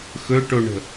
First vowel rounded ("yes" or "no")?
yes